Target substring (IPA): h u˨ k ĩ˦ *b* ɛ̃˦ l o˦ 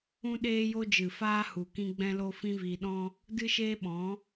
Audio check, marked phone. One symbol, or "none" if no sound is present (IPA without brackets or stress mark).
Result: ɡ͡b